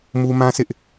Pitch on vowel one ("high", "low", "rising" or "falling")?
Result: high